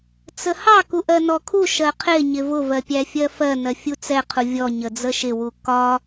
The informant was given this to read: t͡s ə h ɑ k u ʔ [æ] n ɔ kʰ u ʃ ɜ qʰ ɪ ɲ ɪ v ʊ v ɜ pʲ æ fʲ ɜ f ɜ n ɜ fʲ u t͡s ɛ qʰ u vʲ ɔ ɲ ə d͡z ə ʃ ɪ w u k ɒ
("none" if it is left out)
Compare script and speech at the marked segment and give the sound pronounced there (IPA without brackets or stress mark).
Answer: ɜ